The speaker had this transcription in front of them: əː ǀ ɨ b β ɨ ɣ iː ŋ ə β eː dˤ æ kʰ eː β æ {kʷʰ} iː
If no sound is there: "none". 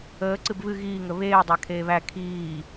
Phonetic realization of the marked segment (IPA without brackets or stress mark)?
kʰ